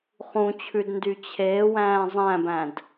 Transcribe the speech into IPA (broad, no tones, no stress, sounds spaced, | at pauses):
χ ũ t͡ɕʰ ʉ d n d y t͡ɕʰ eː w æ̃ː zˤ æ̃ b æ̃ d